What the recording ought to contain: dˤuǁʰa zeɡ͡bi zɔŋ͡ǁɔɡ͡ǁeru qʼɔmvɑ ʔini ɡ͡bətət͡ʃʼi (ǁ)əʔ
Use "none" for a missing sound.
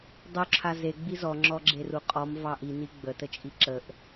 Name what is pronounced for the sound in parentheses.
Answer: ǁ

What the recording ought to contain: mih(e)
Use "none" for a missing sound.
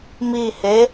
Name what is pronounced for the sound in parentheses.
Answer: e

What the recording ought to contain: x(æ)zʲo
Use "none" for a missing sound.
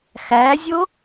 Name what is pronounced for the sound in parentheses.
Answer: æ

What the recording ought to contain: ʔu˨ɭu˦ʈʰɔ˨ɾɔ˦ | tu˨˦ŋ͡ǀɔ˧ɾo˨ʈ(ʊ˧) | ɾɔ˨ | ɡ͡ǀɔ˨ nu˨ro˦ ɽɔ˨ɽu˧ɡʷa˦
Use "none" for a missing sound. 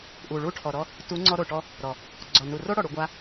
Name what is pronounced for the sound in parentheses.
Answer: ɔ˧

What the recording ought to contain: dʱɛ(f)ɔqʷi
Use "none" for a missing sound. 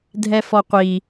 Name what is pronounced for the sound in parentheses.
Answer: f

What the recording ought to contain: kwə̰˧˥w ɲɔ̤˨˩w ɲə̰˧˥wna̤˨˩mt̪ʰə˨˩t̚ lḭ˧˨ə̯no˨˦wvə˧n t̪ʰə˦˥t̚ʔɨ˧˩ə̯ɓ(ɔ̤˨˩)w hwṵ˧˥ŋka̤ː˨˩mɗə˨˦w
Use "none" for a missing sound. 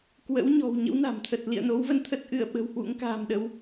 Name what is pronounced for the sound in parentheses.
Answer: ə̤˨˩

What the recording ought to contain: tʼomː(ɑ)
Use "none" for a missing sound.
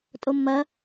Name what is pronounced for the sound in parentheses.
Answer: ɐ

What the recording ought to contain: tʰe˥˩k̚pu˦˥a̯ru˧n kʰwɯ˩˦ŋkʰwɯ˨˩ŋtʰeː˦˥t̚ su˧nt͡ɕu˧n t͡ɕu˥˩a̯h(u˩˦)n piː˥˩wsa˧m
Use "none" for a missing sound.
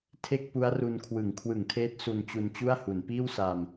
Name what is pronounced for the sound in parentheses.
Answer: u˩˦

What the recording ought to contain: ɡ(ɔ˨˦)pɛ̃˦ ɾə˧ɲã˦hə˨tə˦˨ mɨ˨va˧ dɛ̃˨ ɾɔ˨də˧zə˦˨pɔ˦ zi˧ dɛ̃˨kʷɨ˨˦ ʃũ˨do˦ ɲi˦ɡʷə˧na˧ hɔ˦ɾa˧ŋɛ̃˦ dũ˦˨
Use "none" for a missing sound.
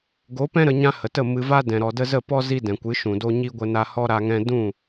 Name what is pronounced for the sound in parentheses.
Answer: o˨˦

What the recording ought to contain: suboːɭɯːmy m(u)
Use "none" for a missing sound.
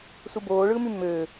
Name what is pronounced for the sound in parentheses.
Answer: ø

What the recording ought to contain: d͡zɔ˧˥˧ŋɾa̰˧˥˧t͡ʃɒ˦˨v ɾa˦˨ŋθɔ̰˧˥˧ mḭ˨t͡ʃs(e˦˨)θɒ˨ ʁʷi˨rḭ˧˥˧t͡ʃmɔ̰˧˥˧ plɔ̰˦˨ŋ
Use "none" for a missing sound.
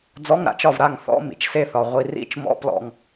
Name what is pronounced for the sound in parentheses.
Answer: e˦˨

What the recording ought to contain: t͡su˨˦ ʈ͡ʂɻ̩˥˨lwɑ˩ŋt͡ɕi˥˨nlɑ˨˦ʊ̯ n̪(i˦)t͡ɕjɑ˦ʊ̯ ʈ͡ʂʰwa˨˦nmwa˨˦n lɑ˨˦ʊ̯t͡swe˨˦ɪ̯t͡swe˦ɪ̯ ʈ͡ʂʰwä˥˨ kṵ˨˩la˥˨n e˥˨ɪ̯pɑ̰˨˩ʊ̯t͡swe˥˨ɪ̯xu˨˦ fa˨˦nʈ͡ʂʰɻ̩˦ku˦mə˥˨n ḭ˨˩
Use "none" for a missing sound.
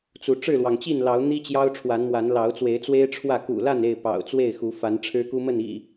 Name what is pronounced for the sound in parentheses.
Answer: i˦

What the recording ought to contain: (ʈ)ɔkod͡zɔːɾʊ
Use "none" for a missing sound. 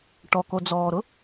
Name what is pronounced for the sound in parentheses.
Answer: ʈ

